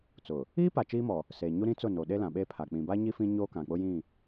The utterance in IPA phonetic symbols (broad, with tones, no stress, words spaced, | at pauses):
t͡sʊ˨ | iː˦pa˨ t͡ʃiː˦mɔ˨ | seː˨ɲu˦ ɾĩ˦t͡sʊ˦˨ no˨ɗe˦lã˨ ɓeː˦pʰa˨ k͡pĩ˨ba˦ɲi˦ fĩ˦ɲoː˦kã˨k͡pʊ˦ jĩ˦˨